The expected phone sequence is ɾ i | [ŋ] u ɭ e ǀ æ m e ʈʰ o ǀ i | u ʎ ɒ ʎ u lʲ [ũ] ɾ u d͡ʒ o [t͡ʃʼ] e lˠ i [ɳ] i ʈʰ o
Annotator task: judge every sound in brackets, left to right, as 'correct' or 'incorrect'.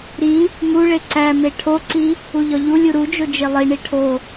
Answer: correct, incorrect: u, incorrect: d͡ʒ, correct

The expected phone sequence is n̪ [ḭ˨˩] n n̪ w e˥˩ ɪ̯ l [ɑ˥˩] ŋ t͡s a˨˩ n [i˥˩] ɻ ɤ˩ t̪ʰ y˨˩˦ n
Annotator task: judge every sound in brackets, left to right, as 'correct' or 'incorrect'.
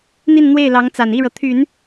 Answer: incorrect: i˥˧, incorrect: ɑ˧˥, correct

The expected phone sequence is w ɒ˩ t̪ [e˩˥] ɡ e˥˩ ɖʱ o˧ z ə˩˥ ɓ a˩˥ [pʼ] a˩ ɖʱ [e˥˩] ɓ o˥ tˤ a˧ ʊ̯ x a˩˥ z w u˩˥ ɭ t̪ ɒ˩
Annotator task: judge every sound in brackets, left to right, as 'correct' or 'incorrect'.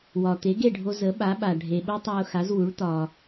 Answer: correct, incorrect: ɓ, incorrect: e˩

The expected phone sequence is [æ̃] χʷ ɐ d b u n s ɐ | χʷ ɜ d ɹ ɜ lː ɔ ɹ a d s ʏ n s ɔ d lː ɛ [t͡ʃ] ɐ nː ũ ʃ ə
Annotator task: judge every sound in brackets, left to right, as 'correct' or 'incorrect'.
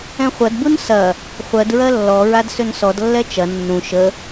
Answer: incorrect: ɛ̃, correct

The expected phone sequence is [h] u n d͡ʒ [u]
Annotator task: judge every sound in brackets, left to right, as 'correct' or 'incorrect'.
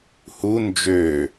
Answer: correct, incorrect: ø

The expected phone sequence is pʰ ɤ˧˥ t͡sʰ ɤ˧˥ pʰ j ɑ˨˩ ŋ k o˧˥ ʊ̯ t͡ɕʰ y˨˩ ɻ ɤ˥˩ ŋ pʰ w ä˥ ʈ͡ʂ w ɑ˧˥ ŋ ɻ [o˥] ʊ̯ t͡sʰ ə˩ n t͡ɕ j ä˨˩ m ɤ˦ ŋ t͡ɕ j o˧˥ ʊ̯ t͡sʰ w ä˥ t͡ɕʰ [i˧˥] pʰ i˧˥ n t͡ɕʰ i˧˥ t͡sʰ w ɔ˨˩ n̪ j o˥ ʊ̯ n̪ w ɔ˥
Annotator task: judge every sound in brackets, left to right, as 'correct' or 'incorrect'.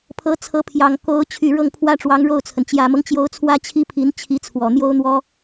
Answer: incorrect: o˥˩, incorrect: i˥

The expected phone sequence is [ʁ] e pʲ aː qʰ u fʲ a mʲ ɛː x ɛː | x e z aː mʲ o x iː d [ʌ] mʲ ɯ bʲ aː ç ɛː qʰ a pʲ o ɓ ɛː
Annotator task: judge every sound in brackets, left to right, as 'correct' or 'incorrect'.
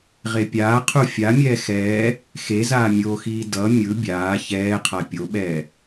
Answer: correct, correct

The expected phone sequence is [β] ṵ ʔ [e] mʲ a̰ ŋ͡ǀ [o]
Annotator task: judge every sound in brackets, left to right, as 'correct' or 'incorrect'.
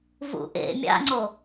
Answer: incorrect: v, incorrect: ḛ, correct

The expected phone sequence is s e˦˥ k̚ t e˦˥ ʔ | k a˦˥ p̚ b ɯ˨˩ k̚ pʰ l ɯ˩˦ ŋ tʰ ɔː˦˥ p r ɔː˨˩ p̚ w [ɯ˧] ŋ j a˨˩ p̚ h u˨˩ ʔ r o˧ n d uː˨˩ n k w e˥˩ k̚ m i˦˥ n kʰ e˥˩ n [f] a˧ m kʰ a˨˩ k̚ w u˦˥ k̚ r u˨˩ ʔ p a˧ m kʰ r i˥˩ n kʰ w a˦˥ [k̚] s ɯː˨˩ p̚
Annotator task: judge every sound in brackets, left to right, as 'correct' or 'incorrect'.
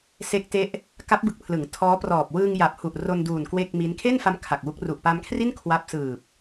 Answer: incorrect: ɯː˧, correct, incorrect: p̚

